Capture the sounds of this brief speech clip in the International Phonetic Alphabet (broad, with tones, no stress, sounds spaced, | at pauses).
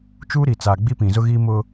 t͡ʃ uː˦ ɾ i˨ t͡s aː˨ ɡ͡b i˦ p ĩ˨ z ʊ˦ ɣ iː˦ m ʊ˦